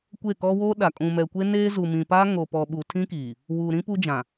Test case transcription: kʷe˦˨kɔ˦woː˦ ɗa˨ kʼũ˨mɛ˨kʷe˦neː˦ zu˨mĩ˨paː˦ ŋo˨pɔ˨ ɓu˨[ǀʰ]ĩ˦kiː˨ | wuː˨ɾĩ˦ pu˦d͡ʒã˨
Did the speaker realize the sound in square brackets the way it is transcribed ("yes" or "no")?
no